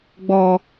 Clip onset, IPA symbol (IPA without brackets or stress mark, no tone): ɡ͡b